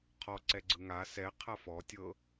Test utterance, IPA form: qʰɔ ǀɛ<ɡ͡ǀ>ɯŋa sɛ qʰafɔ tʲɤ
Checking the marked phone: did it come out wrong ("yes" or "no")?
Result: no